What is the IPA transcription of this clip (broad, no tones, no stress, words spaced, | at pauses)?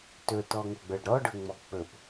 tɵtɔŋoɡ͡bə˞ɖ ɾɔɖɵŋ͡mɔ k͡pɵp